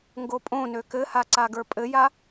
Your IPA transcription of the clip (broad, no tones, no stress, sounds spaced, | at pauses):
ŋ ɡ o pʼ õ n ø k ɘ h a ǀ a ɡ ə˞ pʼ ɘ j a